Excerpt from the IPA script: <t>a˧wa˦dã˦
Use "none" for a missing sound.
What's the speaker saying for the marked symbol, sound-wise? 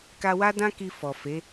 k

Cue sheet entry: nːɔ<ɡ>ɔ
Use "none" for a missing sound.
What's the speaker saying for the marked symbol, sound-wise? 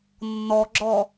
ɡ͡ǁ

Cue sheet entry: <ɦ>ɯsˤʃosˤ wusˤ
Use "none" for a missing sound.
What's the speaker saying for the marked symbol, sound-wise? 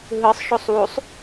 ɦ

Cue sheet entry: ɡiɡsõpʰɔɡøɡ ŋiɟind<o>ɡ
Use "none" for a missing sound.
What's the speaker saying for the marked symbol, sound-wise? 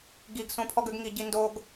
o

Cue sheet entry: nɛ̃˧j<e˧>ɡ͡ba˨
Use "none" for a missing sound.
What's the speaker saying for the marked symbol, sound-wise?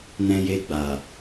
e˧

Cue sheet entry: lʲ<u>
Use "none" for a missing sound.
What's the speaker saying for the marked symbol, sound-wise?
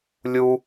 u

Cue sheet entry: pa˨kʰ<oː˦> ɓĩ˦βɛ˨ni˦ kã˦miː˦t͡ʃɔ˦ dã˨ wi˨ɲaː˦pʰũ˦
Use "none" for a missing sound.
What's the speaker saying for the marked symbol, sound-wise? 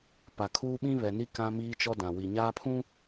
uː˦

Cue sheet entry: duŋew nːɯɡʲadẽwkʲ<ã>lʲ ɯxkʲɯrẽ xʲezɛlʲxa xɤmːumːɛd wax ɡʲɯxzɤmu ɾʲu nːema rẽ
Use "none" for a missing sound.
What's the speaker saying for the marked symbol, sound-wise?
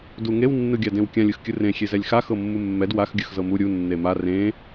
ã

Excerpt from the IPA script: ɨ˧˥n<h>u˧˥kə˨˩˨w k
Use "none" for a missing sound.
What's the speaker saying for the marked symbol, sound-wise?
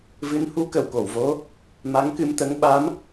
h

